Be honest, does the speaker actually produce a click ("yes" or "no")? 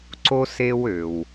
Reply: yes